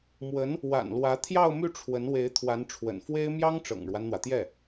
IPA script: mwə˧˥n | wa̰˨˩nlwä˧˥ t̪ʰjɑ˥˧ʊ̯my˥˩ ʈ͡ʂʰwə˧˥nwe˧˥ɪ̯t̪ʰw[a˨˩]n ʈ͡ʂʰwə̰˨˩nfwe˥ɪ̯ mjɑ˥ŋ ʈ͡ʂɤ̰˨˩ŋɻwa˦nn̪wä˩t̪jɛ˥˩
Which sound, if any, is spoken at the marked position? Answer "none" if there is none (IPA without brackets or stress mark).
a˧˥